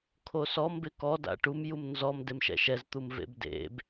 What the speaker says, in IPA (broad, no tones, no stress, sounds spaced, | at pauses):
kʰ o s ɔ m b ɪ k ɔ d a̰ ʈ u m j u m n z ɔ m d e m ʃ ɛ̰ ʃ ɛ z t̪ u m v ḛ b d ḛ b